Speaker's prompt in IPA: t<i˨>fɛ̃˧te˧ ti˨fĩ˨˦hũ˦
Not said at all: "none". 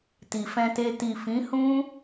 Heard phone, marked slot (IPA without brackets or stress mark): i˨